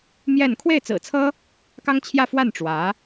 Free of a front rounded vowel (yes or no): yes